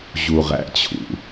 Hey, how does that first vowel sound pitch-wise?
low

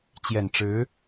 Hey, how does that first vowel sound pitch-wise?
low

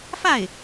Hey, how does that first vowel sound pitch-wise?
falling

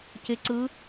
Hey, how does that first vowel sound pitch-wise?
rising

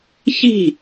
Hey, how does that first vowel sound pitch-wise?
falling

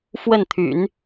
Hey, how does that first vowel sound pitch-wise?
falling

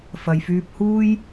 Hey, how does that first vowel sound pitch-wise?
low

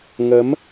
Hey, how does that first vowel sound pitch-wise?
rising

